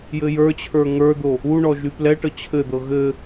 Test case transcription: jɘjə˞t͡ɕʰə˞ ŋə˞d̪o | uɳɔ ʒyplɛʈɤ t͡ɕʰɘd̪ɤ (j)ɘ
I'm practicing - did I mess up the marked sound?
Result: yes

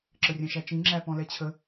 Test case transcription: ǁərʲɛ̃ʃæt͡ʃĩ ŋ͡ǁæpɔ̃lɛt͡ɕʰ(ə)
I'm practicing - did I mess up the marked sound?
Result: no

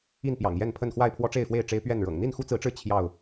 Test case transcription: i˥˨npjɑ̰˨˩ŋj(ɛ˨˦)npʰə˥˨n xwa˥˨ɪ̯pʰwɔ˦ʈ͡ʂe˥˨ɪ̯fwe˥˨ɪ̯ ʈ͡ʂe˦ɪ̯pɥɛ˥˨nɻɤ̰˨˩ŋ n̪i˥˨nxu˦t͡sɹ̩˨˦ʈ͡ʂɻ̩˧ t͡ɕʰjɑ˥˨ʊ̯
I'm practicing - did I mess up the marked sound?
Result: yes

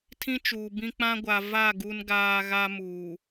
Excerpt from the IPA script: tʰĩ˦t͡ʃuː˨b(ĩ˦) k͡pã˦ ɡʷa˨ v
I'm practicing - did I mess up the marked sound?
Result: no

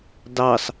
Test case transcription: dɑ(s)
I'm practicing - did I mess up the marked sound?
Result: no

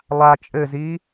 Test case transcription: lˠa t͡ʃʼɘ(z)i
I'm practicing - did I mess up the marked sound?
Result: no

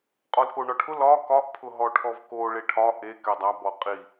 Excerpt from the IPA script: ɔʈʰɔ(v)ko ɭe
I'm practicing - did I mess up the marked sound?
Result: no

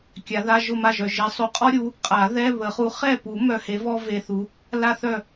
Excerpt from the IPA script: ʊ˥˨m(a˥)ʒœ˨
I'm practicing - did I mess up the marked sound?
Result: yes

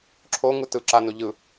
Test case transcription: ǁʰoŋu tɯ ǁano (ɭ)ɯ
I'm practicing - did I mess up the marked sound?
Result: yes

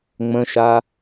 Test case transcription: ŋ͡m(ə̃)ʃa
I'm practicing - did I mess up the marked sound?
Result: no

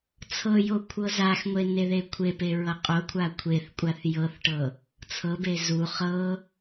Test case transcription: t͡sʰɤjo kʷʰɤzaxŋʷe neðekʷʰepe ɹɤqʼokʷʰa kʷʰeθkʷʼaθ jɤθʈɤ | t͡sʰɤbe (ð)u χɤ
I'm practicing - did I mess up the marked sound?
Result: yes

